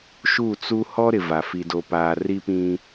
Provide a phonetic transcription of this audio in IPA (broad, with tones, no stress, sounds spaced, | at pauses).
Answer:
ʃ u˦˨ t͡s u˦ h ɔ˦ ɾ ɪ˨ v a˨ f i˨ d o˨ p aː˨ r i˦ p ĩ˦